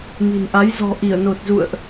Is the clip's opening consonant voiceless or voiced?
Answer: voiced